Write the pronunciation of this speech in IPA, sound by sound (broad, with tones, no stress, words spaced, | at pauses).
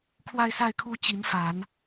kʰwa˥˧ɪ̯sa˥˩ɪ̯kʰu˥ t͡ɕi˧˥nfa˨˩˦n